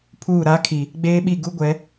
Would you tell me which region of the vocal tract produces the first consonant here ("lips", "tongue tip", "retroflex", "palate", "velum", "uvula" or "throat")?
lips